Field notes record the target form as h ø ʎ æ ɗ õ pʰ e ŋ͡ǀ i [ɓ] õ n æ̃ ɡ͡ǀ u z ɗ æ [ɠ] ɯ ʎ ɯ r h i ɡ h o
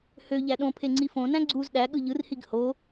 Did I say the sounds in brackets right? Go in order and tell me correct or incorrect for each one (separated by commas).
incorrect, correct